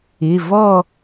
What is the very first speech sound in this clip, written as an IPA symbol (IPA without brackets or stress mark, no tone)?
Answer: ɪ